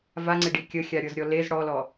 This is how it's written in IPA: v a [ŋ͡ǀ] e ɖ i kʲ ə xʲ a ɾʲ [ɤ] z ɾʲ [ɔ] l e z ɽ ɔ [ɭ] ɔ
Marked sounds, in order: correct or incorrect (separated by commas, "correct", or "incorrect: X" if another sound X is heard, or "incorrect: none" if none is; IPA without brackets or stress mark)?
correct, correct, correct, incorrect: l